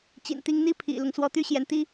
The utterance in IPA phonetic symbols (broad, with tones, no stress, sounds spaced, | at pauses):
t͡ɕ ḭ˨˩ n t̪ i˧˥ ŋ n̪ i˥ pʰ ḭ˨˩ l ʊ˦ ŋ s w ɔ˧˥ t̪ y˥ ɕ j ɛ˧˥ n t̪ i˥